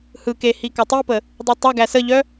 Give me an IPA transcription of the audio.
h ɯ k e h i k ɔ tˤ i p ə | dˤ u tˤ œ ɡ æ s ə ʎ œ

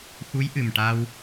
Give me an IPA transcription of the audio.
x u˧˥ j ʔ ɨ˨˩ m ʈ a˧ w

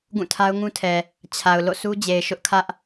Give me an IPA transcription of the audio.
ɡ ũ˦˨ tʰ a˦ ʊ̯ ŋ ũ˦ tʰ ɛ˨ | t͡ɕʰ a˨ ʊ̯ l o̰˦˨ sʰ u˦ d͡ʑ e˨ ɪ̯ ʃ ʊ˦ ʔ kʰ ä˦ ʔ

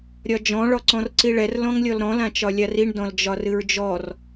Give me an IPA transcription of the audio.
ɾʲ ɒ d͡ʒ ɔ̃ ɭ ɔ ǀ ɔ̃ r ǀ i ɭ ɛ r l ɔ̃ ŋ lʲ ɔ l ɾ ɔ̃ l ã t͡ʃ ɒ lʲ a r i ɳ d ɔ̃ l d͡ʒ ɒ r ɨ ɹ d͡ʒ ɔ r

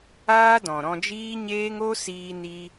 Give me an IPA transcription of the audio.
aː˦ d ɔ̃˨ ɾ ɔ̃˧ d͡ʒ iː˦ ɲ eː˦ ŋ o˦ s iː˧ n i˧

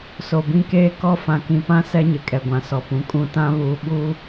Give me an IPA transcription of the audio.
s o˨ b ĩ˦ k eː˦ k ɔ˦˨ f ã˨ k ĩ˨ p ã˦ s ɛ˦ ɲ ɪ˨ kʼ ɛ˨ ɡʷ ã˨ s ɔ˨ p ũ˨ kʼ ũ˦˨ t ã˦ β uː˨ ɓ u˦

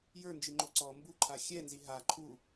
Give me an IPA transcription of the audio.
j ə˞ n d͡ʒ i ŋ͡ǃ o ǀ ɔ m b u ǃʰ a xʲ ɛ n z i ɦ a ǃʰ u

